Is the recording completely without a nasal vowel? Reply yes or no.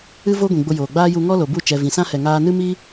no